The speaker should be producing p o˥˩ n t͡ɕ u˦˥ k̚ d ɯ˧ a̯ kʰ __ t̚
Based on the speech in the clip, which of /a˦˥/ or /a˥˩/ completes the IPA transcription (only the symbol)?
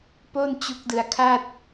a˥˩